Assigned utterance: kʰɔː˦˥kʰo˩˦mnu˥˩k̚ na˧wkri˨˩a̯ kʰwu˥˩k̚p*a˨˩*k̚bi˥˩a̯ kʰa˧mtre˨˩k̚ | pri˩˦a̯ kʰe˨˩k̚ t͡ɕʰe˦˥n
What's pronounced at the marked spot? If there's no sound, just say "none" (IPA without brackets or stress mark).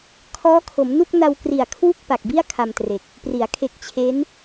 a˨˩